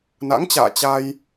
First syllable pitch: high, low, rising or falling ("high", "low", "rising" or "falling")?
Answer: rising